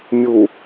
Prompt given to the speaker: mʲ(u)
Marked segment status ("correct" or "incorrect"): correct